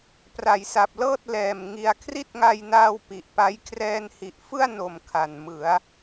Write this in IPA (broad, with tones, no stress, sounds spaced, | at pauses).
p r a˨˩ j s a˨˩ p̚ l ɤː˥˩ t̚ l ɛː˨˩ m ŋ i˧ a̯ kʰ r i˥˩ t̚ ŋ a˧ j n aː˧ w p i˨˩ ʔ p a˦˥ j kʰ r ɛː˧ n h i˨˩ ʔ f ɯ˥˩ a̯ n o˨˩ m kʰ a˨˩ n m ɯ˩˦ a̯